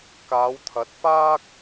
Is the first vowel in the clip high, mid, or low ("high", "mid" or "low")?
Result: low